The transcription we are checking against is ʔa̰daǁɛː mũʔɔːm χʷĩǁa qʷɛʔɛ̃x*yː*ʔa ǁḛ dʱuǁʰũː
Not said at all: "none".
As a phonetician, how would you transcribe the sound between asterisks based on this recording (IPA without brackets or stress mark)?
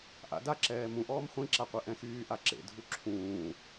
yː